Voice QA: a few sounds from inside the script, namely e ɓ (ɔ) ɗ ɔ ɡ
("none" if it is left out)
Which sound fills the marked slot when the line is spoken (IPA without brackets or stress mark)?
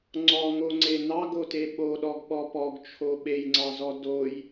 o